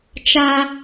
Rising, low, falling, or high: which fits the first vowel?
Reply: high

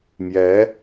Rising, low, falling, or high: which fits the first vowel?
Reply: rising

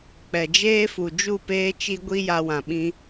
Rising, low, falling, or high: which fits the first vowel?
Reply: low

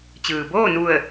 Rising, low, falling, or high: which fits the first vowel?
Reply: low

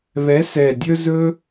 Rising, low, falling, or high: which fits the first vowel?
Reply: rising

